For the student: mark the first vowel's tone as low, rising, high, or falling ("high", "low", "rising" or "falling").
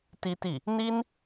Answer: high